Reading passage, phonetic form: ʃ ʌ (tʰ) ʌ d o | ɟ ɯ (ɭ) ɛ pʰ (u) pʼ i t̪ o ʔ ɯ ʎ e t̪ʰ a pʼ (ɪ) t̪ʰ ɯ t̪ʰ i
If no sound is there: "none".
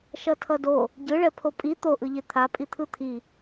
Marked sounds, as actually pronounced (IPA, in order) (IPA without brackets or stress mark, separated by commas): tʰ, ɭ, o, i